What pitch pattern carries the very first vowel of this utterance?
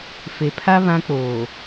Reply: low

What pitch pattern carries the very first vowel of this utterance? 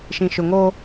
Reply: low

